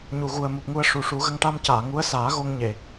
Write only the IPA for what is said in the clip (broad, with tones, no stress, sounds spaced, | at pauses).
ɲ u˨˩ ɣ u˨˩ ə̯ m u˨˩ p̚ ŋ u˧ ə̯ ʂ u˨˩ ʂ u˨˩˦ ɣ ə˧ ŋ ʈ a˧ m c aː˨˩˨ ŋ u˧˥ ə̯ s aː˨˩˦ ɣ o˧ ŋ ɲ e˨˩˨